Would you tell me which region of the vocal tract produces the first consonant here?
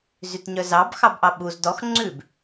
tongue tip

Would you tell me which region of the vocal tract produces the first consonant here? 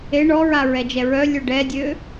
retroflex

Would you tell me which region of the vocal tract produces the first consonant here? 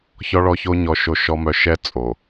palate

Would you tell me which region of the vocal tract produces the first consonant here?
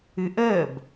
throat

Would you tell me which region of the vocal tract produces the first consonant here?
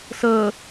tongue tip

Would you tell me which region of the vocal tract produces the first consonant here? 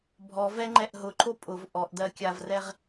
lips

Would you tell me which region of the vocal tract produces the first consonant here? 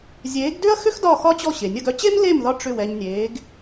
tongue tip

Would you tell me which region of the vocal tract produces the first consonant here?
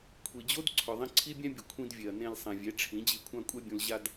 velum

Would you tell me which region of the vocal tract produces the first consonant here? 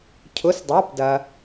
palate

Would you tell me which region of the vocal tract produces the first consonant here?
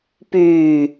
lips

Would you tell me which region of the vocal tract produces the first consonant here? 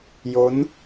palate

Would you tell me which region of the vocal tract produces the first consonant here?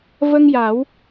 lips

